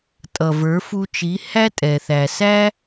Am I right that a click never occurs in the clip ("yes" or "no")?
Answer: yes